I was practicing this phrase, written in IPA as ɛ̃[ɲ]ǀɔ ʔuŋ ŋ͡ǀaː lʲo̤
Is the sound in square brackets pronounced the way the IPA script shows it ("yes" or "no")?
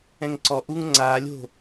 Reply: no